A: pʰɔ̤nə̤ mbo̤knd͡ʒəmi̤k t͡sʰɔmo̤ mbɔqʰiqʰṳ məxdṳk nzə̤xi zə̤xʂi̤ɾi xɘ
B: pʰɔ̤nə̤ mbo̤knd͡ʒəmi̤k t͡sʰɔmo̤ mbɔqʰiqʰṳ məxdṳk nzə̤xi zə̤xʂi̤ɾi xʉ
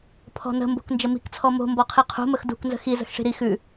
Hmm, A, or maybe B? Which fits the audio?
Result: B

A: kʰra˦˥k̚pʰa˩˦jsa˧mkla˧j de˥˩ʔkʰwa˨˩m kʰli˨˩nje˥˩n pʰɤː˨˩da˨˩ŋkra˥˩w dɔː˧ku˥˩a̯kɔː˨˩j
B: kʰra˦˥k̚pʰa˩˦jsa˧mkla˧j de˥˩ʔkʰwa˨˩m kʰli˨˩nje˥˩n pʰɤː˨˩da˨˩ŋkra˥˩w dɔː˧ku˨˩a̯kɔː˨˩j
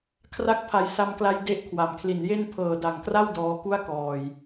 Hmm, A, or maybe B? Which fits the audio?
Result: A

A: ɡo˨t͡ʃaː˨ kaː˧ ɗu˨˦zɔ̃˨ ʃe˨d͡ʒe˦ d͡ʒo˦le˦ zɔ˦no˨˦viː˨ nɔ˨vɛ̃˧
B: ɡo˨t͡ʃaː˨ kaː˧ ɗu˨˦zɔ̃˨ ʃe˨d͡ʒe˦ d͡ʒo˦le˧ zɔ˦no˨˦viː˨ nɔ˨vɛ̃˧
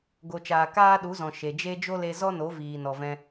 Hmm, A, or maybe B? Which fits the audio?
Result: B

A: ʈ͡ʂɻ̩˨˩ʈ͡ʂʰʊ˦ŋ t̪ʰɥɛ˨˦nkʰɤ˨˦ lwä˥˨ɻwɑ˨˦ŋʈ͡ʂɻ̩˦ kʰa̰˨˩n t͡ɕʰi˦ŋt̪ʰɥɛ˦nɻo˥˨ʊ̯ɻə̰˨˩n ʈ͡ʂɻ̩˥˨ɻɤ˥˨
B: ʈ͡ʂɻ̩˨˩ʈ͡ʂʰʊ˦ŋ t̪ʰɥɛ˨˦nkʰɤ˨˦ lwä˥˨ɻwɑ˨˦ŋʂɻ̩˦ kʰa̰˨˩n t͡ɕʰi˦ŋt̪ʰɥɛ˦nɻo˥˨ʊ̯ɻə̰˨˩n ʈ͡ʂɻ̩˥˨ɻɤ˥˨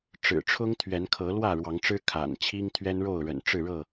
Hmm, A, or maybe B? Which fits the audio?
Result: A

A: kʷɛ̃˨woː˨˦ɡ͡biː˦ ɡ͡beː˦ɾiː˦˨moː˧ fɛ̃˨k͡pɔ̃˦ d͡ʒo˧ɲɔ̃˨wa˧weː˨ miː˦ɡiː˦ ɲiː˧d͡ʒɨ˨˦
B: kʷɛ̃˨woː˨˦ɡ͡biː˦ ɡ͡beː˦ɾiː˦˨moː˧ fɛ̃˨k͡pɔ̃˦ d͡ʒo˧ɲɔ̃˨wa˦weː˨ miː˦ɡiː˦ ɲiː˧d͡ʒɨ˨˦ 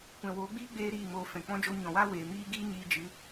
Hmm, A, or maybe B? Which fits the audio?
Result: B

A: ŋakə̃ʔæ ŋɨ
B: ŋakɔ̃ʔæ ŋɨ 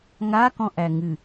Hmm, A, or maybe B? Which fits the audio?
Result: B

